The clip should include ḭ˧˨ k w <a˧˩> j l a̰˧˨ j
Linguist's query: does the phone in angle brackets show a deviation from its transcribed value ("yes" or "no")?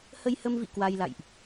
yes